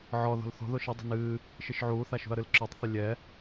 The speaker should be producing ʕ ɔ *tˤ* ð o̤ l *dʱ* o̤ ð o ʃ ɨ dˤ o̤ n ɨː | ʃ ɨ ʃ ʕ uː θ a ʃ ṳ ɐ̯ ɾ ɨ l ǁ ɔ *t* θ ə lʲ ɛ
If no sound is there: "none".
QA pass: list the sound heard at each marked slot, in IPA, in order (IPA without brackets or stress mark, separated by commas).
none, θ, tˤ